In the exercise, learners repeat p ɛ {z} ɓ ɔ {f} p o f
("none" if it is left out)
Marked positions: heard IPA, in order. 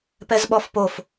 z, f

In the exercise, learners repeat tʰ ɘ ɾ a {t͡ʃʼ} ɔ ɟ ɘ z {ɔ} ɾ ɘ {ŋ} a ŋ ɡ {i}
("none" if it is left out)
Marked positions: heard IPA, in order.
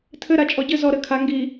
t͡ʃʼ, ɔ, kʰ, i

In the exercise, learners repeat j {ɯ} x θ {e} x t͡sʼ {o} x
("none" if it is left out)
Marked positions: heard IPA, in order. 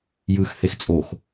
ɯ, e, o

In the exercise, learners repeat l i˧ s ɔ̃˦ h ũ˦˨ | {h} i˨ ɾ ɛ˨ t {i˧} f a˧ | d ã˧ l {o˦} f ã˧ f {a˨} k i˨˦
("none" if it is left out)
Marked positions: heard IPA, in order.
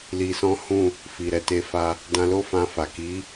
f, e˧, o˦, a˨

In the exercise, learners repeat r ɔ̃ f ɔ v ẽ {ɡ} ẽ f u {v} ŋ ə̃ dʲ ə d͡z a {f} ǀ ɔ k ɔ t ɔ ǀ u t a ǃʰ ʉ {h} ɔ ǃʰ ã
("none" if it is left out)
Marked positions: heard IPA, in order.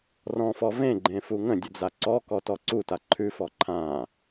ɡ͡ǃ, none, none, f

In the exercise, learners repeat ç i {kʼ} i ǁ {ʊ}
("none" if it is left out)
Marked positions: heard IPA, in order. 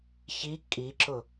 kʼ, ʊ

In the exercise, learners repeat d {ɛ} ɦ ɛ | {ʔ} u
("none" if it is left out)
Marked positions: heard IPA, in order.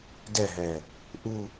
ɛ, ʔ

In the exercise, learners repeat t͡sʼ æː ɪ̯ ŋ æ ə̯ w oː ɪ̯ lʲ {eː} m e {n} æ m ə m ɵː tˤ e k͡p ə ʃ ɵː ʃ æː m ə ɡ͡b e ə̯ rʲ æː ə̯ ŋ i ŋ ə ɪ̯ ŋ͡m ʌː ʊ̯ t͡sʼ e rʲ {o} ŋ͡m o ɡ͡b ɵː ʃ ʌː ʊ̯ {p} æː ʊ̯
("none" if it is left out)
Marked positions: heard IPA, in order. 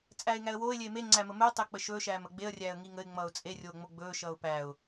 eː, ŋ͡ǀ, oː, p

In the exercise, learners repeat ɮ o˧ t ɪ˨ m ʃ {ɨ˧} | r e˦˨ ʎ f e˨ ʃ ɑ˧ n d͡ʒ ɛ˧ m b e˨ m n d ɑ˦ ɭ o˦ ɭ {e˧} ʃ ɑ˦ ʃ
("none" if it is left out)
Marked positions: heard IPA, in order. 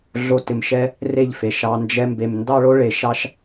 ɛ˧, e˧

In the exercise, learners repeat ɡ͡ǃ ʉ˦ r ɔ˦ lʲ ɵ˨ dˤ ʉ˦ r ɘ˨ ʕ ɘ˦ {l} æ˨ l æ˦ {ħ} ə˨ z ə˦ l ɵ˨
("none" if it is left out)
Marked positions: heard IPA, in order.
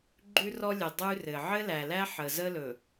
l, ħ

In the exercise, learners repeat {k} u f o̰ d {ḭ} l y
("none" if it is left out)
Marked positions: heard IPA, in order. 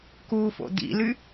k, ḭ

